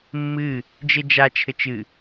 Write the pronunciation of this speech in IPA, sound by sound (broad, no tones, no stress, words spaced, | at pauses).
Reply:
mːɨ | d͡ʒed͡ʒat͡ʃʰɘ t͡ʃɨ